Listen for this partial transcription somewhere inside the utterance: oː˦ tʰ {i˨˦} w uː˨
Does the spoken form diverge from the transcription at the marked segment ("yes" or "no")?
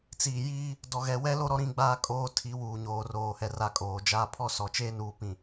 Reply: no